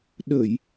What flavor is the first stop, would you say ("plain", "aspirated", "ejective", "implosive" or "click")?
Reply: implosive